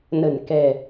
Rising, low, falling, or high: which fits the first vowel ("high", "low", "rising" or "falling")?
low